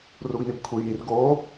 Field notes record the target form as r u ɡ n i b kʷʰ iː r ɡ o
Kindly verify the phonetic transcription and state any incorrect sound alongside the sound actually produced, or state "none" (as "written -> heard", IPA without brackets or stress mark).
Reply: none